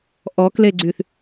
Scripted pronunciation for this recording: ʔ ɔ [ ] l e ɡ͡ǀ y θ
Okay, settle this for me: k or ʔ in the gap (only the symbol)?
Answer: k